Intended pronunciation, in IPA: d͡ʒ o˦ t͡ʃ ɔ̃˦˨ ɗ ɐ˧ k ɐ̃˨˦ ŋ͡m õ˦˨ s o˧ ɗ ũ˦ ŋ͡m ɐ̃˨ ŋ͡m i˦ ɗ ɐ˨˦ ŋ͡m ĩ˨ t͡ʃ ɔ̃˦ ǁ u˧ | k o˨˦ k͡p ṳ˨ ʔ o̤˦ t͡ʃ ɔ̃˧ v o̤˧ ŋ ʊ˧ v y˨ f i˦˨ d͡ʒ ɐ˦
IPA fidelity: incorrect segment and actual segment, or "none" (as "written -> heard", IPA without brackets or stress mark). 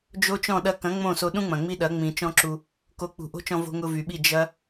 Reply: f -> ɓ